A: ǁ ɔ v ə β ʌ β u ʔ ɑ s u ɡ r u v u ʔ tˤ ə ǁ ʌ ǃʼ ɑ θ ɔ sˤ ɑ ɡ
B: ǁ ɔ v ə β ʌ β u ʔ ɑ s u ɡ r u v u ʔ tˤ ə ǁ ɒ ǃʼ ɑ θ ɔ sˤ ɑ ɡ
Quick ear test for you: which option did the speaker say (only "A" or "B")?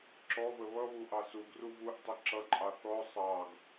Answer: A